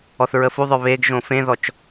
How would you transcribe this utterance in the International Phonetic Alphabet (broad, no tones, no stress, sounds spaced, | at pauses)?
ɔ θ ɹ ə f u ðˤ œ β e ɡ ʒ õ f ẽ ð ɔ t͡ʃ